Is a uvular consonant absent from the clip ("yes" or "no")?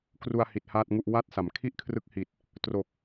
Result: yes